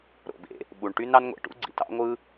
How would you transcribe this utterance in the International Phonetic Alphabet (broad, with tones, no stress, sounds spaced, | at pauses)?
ɾ o̰˩ b ḛ˩ | ɓ u˩ ɳ ʈ y˥ n ɑ˥ n ŋʷ ḛ˩ ʈ ṵ˥ ɡ͡ǀ ḭ˩ t ɑ̰˥ ŋʷ ɯ˥